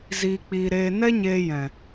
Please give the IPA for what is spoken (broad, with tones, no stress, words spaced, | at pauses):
ziː˧k͡piː˧ ɾeː˧ nɛ˦ɲeː˧ jɛ̃˨